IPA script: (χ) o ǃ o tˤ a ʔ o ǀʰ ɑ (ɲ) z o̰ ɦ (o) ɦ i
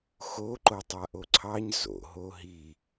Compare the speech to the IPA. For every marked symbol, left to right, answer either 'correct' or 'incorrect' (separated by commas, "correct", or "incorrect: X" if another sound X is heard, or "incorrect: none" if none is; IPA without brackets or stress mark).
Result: incorrect: x, correct, correct